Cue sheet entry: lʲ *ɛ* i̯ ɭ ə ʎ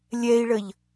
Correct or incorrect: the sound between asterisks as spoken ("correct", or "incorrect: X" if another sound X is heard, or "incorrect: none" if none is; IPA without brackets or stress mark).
correct